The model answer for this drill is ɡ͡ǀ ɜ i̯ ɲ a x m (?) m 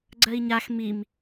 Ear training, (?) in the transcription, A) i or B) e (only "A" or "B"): A